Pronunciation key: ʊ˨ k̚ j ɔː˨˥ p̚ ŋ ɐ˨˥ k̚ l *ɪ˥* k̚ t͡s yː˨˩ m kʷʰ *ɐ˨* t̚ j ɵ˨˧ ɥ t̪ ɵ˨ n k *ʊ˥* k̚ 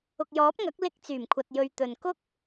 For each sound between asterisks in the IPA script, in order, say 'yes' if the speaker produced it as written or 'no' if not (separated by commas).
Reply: no, yes, yes